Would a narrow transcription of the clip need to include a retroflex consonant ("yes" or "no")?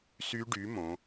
yes